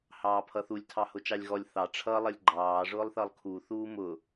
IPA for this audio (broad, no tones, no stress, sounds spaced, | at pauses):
h ɑː pʰ ʌ θ u lʲ tʰ ɑ h ʊ t͡ʃ ɑ lʲ ɣ ɔ lʲ θ ɑ ʈ͡ʂʰ ʌ lˠ ʌ lʲ ɡ͡ǃ ɑː ʐ ʊː lˠ θ ʌ lˠ kʰ u θ uː m ʊ